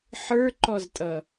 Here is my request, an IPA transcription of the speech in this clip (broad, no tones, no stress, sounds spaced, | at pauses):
ħ ə˞ ǃ ɔ z tʼ ʌ